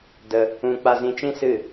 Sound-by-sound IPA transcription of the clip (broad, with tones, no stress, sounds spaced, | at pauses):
d ə˧ | ũ˧ k͡p a˧ z ĩ˧ t͡ʃ ĩ˦ s ɨ˦˨